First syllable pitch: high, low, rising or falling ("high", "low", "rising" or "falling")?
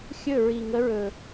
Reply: falling